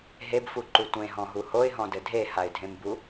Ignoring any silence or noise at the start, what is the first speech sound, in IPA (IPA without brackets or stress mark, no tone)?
ɦ